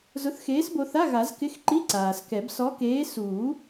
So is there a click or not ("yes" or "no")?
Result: yes